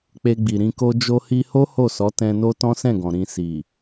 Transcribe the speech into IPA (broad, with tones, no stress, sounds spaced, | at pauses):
k͡p e˧ ɡ͡b i˨ ɾ ĩ˧ k o˦ d͡ʒ o˧ h i˧ h o˦ h o˦˨ s ɔ˨˦ t ɛ̃˧ n o˦ t ɔ̃˦ s ɛ̃˦˨ ɡ ɔ̃˨ ɾ ĩ˨ s i˨